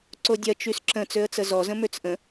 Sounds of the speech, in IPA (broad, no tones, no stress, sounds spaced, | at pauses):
ǀ o dʲ ɐ t͡ʃ y s ǁ ə̃ t͡s ø ə̯ t͡s ə z ɔ z ə̃ m ø t͡s ʔ ə̃